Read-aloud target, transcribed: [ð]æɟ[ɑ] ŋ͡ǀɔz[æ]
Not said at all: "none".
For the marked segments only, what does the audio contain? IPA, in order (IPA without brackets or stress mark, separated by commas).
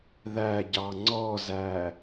ð, ɑ, æ